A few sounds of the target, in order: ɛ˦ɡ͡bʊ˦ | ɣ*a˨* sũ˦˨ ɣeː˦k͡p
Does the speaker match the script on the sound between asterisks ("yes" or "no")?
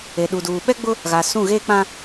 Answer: yes